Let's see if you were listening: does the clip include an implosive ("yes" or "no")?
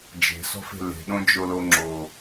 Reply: yes